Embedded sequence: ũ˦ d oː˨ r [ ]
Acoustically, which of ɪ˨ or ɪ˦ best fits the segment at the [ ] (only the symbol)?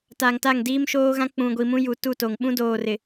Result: ɪ˨